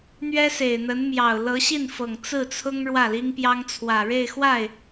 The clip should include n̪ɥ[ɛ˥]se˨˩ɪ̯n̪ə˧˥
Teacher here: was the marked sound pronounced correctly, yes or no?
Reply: yes